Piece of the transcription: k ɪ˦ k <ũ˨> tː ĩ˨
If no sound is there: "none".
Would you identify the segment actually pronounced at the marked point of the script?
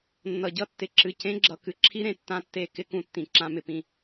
ũ˦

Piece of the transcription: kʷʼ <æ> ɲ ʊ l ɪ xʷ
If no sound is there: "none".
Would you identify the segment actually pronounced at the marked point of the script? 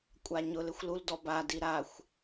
a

